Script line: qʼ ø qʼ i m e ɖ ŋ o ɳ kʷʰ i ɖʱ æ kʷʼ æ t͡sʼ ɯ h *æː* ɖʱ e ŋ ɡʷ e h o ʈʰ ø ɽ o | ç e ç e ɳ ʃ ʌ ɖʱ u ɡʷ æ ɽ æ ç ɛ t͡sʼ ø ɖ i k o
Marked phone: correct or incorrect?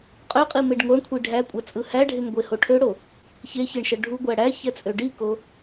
incorrect